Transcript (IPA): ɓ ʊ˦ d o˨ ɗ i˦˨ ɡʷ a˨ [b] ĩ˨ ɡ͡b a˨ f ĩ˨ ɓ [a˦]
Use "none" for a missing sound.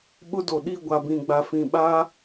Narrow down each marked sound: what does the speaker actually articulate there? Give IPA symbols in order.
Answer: b, a˦

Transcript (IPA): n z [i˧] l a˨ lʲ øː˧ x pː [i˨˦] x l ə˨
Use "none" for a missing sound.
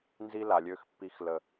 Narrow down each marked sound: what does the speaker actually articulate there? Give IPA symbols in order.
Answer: i˧, i˨˦

